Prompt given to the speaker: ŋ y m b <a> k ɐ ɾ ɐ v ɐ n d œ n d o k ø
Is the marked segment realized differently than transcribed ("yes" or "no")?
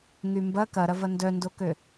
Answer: yes